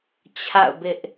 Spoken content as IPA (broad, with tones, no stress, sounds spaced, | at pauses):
t͡ɕʰ a̰˦˨ ʊ̯ b ɪ˦ ʔ